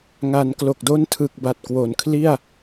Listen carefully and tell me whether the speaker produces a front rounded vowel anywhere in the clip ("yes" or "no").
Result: no